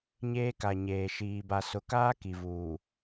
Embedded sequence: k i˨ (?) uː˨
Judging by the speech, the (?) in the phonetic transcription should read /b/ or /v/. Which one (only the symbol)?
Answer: v